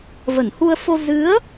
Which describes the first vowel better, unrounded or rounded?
unrounded